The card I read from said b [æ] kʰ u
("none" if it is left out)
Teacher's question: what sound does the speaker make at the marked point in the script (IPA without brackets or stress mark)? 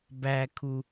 æ